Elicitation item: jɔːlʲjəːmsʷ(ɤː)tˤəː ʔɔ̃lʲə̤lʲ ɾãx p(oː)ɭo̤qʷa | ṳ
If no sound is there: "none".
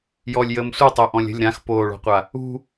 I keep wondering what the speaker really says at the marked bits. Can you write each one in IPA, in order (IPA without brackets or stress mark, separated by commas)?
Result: ɤ, oː